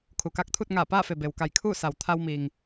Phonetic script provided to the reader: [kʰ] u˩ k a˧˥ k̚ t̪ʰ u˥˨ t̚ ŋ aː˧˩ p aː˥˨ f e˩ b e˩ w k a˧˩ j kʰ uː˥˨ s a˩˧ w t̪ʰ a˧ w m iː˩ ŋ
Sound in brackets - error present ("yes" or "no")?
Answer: no